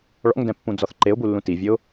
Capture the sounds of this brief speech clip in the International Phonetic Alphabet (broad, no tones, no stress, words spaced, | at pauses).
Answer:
ɭɔ̰ŋdɛ̃pːũd͡zɔθ ǃeʊ̯bulːũ tivʲɘʊ̯